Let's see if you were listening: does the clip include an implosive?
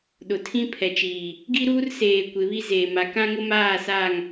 yes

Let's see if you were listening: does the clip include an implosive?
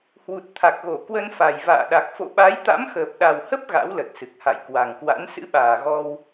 yes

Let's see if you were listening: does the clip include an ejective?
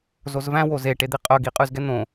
yes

